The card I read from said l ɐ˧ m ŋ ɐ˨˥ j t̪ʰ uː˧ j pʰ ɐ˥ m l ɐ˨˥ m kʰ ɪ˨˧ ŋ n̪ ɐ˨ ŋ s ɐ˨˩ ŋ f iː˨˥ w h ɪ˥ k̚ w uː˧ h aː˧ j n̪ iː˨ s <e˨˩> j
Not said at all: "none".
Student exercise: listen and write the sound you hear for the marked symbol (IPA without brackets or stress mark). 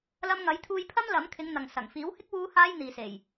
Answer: e˨˩